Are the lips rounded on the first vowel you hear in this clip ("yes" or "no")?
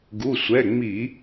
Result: yes